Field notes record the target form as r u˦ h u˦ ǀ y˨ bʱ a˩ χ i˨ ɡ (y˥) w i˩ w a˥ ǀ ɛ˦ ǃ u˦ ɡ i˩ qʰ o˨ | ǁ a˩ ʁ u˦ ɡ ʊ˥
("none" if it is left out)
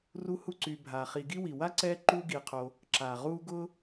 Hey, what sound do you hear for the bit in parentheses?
i˥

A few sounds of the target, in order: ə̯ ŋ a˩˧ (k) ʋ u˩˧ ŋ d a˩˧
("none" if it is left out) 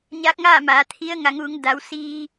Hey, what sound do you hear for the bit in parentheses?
ŋ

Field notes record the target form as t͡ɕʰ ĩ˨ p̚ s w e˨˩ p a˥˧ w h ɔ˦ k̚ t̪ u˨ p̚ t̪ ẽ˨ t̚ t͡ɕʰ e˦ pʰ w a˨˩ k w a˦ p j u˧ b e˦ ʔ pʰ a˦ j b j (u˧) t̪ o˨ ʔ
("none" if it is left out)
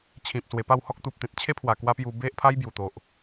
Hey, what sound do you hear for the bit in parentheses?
u˨˩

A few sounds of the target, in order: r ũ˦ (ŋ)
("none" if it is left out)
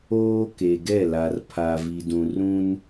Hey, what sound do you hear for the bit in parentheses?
n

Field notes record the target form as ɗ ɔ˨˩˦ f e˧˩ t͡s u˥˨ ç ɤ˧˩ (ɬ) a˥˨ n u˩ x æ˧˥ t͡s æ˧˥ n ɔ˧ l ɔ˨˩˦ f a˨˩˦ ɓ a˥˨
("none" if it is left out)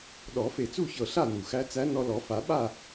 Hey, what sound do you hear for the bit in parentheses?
ɬ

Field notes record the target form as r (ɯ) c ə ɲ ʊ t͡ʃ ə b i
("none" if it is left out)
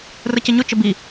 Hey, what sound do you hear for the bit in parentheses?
ə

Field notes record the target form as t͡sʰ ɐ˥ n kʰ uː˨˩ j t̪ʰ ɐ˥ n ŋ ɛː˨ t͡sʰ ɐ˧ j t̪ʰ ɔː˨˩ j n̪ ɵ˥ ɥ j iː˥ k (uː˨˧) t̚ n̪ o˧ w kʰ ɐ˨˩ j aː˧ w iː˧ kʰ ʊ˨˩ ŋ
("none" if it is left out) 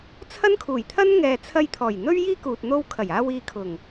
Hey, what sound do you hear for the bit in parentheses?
uː˨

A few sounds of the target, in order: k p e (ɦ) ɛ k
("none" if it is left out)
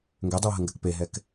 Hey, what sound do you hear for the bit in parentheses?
ɦ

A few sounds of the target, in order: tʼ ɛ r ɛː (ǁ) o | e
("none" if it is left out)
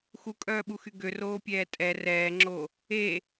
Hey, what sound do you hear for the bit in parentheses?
ŋ͡ǁ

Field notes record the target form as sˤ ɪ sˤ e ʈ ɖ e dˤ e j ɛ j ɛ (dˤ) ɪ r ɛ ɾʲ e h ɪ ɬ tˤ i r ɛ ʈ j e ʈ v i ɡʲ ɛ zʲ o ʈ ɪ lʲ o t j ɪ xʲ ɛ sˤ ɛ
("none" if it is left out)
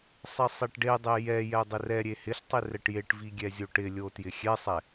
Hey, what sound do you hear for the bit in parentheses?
dˤ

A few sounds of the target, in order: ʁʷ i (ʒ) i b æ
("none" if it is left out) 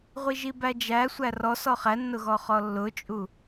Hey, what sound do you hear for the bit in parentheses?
ʒ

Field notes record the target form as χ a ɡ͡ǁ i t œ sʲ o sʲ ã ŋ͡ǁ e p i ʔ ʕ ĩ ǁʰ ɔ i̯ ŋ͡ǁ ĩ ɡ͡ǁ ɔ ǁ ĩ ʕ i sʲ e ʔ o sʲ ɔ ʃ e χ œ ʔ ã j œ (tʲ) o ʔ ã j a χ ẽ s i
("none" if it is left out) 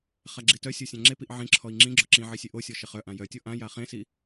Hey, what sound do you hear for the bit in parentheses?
tʲ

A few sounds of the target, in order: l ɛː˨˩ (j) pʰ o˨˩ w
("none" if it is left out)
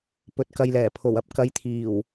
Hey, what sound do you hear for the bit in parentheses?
none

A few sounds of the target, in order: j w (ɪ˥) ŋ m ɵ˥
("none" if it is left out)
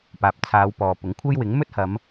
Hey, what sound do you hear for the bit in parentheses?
ɪ˨˥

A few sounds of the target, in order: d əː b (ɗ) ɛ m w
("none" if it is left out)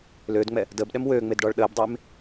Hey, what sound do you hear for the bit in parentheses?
ɗ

